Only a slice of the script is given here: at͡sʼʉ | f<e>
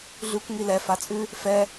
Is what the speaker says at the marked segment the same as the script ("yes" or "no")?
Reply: no